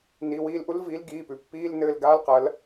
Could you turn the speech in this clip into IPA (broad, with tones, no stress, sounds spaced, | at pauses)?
n i˩˧˩ w iː˦˨ l ʔ u˦˥ l v iː˨˥ l ɡ iː˩˧˩ p ʉ˩ pː iː˧˥˧ l n ɘː˦˨ l ɡ aː˦˥ l q ɐ˨˥ l